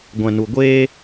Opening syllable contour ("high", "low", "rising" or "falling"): low